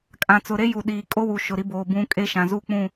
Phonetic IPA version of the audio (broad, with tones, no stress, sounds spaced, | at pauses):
kʼ ã˨ t͡s ʊ˨ ɾ e˦ j u˨ ɗ iː˨ kʼ o˦ w u˨ ʃ ʊ˨ ɾ i˦ b oː˨ b ũ˦ kʼ e˦ ʃ ã˨ z u˦ k͡p ũ˦˨